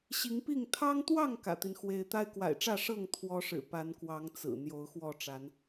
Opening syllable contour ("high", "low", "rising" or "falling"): rising